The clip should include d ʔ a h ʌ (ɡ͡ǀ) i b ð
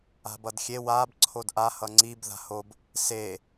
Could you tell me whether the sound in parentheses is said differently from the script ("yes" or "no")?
yes